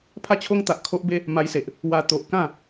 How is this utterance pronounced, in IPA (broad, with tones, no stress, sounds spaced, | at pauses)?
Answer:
pʰ a˥˧ t͡ɕʰ o˦ ŋ t̪ a˨ ʔ kʰ o˦ ʔ b e˦ | m a˧ j s e˨ ʔ | w a˧ t̪ o˨ ʔ k ã˥˧